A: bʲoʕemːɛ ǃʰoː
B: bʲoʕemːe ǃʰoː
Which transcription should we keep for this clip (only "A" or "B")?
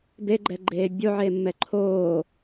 A